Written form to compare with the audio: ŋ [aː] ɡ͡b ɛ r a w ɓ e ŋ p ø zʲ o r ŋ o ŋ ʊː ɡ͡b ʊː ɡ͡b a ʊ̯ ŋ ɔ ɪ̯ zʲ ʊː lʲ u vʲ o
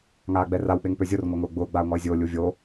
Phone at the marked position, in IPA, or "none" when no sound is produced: aː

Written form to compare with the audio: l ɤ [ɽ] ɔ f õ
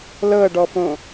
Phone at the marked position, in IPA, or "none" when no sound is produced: ɖ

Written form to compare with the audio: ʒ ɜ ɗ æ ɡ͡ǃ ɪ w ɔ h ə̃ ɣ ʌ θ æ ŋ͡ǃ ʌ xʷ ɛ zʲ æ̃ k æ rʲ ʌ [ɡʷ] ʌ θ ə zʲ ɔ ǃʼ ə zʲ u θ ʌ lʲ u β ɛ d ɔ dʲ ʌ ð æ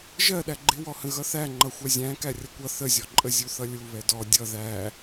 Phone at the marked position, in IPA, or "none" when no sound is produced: kʷ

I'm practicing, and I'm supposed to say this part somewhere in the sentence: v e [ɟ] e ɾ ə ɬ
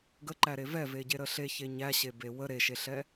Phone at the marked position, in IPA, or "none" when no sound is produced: ɟ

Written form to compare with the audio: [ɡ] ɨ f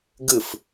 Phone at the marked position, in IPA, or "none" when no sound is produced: ɡ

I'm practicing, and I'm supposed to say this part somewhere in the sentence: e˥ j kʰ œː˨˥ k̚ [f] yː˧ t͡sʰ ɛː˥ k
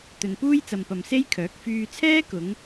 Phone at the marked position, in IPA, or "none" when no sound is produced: f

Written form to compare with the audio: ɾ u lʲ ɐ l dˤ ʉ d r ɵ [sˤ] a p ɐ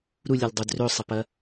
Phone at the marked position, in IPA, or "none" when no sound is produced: sˤ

